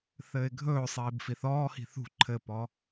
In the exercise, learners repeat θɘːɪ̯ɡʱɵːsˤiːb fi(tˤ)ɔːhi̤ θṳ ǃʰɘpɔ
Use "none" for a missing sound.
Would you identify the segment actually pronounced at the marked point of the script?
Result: θ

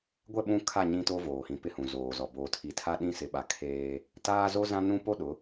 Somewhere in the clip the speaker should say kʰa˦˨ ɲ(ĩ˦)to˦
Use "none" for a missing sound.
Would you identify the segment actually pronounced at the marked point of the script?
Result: ĩ˦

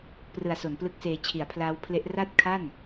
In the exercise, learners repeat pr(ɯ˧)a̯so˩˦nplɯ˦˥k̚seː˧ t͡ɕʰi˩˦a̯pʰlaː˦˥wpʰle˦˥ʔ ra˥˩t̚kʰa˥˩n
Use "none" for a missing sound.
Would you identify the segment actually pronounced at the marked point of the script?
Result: ɯ˨˩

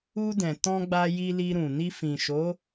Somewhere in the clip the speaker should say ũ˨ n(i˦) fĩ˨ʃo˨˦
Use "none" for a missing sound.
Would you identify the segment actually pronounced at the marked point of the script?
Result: i˧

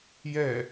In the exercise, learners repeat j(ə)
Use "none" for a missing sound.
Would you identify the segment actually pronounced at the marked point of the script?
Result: ɛ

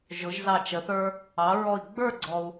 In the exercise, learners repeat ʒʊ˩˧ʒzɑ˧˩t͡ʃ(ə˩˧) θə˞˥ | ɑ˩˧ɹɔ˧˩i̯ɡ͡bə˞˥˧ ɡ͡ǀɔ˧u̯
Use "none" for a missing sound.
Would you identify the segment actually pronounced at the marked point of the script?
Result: ə˩˧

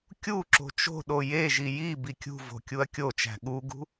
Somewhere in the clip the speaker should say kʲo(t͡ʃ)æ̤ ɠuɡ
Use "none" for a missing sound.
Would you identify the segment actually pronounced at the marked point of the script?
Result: t͡ʃ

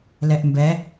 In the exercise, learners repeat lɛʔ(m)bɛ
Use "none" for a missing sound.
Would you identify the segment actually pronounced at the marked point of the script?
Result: m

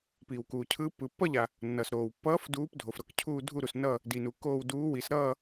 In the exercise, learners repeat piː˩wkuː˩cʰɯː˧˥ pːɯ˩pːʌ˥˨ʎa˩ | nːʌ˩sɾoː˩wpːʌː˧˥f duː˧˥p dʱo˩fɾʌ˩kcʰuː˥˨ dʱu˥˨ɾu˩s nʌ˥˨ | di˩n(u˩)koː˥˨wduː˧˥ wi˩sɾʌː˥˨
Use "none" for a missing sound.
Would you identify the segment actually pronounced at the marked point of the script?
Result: u˩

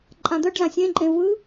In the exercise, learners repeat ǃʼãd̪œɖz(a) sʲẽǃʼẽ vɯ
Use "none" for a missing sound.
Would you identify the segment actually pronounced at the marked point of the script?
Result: ã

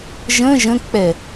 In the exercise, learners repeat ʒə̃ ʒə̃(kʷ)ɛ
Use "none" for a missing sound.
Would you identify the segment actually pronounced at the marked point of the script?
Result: k͡p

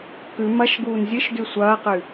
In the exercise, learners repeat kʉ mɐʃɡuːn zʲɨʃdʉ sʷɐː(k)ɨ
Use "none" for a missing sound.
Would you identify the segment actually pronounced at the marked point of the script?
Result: q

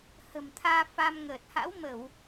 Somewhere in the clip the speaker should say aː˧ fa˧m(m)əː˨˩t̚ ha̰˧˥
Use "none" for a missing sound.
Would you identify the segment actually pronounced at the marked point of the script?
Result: ŋ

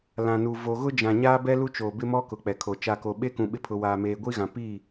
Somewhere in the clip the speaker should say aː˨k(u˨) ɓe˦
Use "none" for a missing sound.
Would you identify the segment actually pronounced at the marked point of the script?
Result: o˨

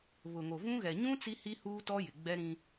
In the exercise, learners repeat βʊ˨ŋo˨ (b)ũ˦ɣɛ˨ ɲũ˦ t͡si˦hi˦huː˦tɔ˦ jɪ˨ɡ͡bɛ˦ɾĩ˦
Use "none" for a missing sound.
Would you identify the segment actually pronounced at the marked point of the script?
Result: v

